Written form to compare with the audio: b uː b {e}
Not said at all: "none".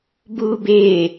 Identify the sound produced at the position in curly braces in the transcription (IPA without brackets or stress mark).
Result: e